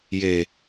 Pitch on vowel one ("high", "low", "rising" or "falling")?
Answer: low